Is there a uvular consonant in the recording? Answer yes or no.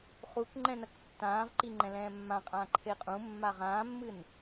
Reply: yes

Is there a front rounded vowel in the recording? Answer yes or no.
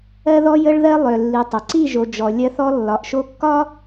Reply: yes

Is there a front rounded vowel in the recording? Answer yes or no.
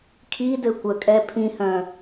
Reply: yes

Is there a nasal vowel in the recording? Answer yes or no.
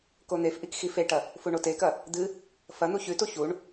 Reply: no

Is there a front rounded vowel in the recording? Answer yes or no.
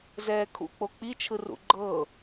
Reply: no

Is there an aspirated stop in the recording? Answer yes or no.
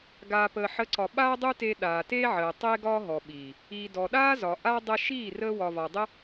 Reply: no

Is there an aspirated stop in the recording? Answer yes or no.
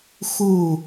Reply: no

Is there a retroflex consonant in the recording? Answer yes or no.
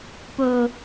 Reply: no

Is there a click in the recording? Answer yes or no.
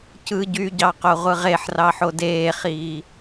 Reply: no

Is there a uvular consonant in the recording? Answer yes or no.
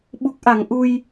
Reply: no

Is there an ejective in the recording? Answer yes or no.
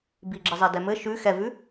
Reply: no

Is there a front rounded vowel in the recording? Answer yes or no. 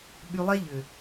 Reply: yes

